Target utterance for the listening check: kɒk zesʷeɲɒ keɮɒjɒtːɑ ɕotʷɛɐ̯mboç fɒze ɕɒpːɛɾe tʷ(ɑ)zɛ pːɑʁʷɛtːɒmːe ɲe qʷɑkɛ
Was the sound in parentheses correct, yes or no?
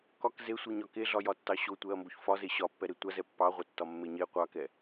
no